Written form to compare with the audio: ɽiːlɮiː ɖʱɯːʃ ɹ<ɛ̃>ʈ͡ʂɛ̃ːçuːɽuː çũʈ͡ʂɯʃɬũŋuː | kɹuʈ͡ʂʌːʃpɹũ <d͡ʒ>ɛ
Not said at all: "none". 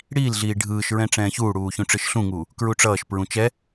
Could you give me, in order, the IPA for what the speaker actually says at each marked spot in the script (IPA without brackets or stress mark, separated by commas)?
ɛ̃, t͡ʃ